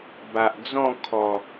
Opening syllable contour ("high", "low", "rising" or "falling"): low